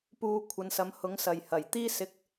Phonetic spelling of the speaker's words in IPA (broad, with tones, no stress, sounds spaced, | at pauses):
p uː˧ kʷʰ ɐ˨˧ n s ɐ˨˧ m h ʊ˨˥ ŋ s ɐ˨ j h ɐ˨˩ j t̪ iː˥ s ɪ˧ k̚